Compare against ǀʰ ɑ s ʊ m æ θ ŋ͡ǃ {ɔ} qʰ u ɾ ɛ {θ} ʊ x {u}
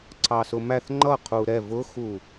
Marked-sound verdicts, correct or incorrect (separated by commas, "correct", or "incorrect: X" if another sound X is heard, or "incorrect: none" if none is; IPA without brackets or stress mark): incorrect: ʌ, incorrect: v, correct